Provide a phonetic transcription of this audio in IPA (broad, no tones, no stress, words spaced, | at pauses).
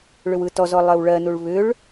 ɭʏwɯtɔzɔ lˠɜwɭɜnuɭ βʏɭ